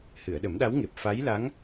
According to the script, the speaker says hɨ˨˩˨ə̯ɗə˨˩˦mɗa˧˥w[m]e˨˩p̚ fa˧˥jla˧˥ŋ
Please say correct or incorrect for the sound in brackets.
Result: incorrect